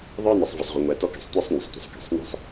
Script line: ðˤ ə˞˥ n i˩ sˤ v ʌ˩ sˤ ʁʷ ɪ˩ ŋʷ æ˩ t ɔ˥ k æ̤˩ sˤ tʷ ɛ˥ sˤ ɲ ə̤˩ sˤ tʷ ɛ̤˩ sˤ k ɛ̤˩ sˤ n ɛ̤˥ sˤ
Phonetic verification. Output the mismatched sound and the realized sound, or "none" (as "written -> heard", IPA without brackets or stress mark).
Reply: none